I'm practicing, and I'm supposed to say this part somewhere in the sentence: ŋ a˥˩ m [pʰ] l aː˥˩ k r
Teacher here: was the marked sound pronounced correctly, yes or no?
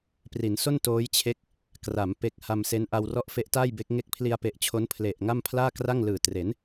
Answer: yes